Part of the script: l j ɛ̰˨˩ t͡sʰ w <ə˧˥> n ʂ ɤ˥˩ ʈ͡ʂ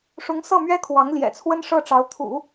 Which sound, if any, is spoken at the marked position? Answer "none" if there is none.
ə˥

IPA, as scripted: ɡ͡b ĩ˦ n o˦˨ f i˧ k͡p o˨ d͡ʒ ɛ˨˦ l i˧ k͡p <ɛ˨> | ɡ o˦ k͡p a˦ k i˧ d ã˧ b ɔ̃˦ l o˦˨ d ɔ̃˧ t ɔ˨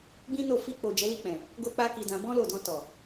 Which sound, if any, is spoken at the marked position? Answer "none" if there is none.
ɛ̃˨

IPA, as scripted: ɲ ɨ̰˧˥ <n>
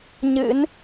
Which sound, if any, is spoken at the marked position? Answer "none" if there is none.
n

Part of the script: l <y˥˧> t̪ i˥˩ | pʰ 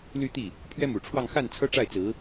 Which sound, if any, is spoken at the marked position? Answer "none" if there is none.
y˥˧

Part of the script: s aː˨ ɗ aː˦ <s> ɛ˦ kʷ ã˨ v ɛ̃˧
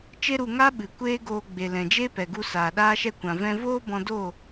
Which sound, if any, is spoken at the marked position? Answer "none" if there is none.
ʃ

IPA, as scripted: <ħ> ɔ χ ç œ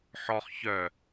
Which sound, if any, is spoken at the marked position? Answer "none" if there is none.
ħ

